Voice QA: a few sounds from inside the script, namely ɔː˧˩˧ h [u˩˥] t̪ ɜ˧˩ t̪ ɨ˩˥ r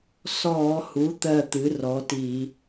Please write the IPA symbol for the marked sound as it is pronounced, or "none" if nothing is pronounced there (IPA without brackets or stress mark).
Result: u˩˥